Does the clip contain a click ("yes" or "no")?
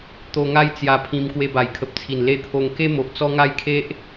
no